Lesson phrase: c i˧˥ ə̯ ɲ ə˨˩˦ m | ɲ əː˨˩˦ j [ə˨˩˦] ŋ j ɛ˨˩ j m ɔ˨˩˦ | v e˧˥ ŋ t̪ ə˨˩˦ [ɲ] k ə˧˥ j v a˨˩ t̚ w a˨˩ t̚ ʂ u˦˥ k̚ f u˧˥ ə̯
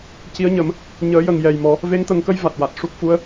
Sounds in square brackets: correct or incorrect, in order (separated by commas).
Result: incorrect, incorrect